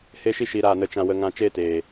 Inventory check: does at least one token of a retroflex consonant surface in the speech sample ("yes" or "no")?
no